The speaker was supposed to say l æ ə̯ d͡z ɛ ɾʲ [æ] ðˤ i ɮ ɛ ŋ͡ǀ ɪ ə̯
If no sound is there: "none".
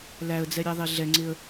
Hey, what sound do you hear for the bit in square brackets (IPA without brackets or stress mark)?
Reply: æ